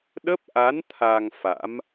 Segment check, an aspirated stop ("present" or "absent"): present